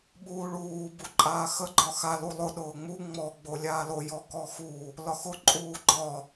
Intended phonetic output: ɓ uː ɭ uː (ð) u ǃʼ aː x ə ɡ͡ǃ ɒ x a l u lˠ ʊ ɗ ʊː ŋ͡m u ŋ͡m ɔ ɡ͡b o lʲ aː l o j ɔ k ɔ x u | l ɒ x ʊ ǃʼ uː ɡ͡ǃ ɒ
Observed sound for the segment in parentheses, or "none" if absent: b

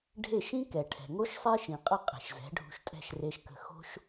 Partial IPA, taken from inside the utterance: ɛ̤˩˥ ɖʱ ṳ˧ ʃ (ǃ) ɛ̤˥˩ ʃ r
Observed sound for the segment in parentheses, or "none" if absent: tʼ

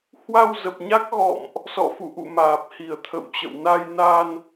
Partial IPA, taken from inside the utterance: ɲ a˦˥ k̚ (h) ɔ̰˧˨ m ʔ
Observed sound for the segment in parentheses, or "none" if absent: ɣ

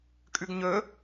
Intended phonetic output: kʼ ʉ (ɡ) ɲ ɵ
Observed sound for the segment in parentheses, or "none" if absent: ɡ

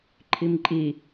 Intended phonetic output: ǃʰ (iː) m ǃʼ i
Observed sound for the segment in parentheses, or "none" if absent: i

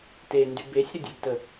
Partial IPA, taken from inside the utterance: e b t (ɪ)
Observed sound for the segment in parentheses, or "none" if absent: ə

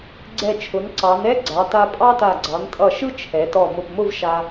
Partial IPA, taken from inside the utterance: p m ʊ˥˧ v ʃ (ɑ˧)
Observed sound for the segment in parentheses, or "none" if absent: a˧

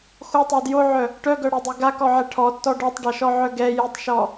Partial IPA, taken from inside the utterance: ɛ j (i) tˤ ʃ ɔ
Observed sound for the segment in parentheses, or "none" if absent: e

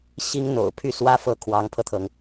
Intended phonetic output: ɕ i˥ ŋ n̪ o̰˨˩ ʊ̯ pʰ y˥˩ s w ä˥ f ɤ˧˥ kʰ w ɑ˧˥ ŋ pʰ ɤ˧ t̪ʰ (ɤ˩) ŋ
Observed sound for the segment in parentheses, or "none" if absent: ɤ˩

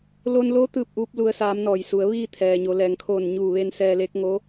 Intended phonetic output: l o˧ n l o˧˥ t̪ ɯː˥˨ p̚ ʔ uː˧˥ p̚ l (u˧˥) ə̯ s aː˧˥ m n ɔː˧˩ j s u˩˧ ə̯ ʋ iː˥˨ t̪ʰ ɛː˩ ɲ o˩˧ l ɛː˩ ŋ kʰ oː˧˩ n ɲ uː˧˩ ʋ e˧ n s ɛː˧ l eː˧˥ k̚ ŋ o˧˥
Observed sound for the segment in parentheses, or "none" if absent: u˧˥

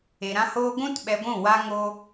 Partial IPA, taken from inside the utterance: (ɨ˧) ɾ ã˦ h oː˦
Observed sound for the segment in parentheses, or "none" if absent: e˧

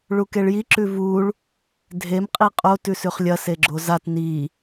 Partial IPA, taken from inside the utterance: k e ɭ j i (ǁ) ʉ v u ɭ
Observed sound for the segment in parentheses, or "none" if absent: ǁ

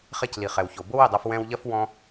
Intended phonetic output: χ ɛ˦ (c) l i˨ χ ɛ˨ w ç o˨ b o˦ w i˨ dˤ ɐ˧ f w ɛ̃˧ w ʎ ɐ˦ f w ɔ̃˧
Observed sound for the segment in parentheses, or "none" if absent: c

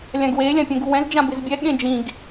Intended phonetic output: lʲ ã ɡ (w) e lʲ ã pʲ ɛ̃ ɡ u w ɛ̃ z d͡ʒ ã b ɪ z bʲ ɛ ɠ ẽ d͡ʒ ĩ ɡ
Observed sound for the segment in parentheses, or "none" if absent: w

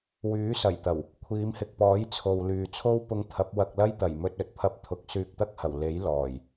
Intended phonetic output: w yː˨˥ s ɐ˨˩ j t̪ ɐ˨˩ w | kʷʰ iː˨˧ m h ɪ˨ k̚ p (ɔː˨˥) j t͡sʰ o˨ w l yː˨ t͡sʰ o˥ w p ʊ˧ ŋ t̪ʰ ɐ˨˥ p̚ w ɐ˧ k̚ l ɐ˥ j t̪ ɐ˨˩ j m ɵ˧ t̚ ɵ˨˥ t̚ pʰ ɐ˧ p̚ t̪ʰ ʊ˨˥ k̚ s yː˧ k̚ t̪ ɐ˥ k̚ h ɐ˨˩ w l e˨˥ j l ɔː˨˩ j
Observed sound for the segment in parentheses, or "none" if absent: ɔː˨˥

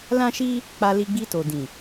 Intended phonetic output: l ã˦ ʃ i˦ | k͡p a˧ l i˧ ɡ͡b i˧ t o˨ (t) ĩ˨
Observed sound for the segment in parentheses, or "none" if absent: d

